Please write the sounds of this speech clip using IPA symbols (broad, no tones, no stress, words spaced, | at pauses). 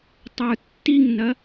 tˤə˞tːiŋnɐ